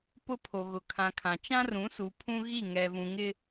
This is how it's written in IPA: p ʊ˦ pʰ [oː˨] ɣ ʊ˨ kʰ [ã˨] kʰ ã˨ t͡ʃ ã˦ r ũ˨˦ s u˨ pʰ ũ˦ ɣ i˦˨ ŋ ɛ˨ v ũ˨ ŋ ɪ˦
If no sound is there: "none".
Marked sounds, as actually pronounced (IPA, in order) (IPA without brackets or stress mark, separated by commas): o˨, ã˨